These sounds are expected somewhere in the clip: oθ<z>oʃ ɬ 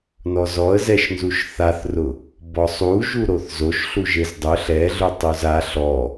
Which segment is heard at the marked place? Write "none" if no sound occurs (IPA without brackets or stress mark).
z